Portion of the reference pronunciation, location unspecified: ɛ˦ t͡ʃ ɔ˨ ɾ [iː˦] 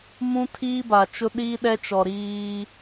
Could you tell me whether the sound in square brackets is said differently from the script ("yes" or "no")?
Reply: no